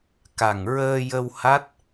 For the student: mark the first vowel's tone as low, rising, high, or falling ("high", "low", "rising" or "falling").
low